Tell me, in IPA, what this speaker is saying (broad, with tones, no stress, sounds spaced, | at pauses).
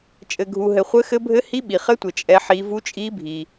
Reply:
t͡ʃʼ ɘ˨ ɡʱ u˨ ɦ ɘ˨ χʷ ɘ˦˥ x ɘ˦˥ bʱ ɘ˦˥ h i˦˥ ɓ i˨ χ ɘ˦˥ tʷ ɘ˨ t͡ʃʼ ɛ˦˥ ħ i˦˥ v u˦˥ t͡ʃʼ i˦˥ bʱ i˨